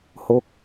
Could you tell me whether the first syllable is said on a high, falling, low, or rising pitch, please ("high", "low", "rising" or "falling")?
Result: falling